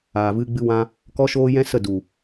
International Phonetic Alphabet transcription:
aː˨ v ɨ˧ ɡ͡b ɨ˧ w ã˧ | k ɔ˦ ʃ oː˦ j ɛ̃˦ s ə˦˨ d u˨

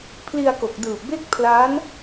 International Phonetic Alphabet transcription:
pʰ l i˧ a̯ k o˨˩ k̚ d ɯː˨˩ p̚ b e˥˩ k̚ pʰ l a˦˥ n

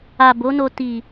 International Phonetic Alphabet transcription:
a˨ b o˨˦ n o˧ t i˨

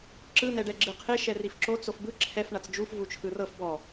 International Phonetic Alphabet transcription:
ǁ ɯ n ɛ ɖ ɛ ɡ͡ǁ ɯ qʰ e ʃ ɛ r i f ǁ o t͡s o f b ɯ ǁʰ ɛ f ɳ a t͡s d͡ʒ u f v u t͡ʃʰ ɯ r ɤ f b ɔ

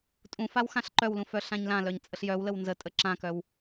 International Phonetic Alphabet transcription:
tʼ ũ f a w x ã ɬ ǃ œ w l ũ f œ ɬ ã ɲ l ã l œ ɲ t͡sʼ ə ɬ j œ w l ə w n z ə tʼ ə ǁ ã k œ w

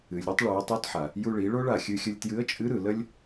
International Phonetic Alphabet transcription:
ɨ˩ lʲ ɾ ɨ˥ tˤ ɭ u˩˧ ə̯ tˤ u˧˥ t ħ a˩ | j u˧ ɭ i˩˧ ɭ o˥ ɭ a˩ xʲ ɨ˧ xʲ ə˧ lʲ t j ɨ˧˥ ə̯ t͡ʃʼ ɨ˧˥ ɾ ɯ˩ l ə˥ lʲ

